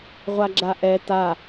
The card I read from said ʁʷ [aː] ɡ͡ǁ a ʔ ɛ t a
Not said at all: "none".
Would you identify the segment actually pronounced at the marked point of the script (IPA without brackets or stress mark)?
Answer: a